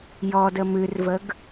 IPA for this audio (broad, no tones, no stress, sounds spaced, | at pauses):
j ɔ d ə m ɨ r v ə ɡ